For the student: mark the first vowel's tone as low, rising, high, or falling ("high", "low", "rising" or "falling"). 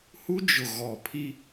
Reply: high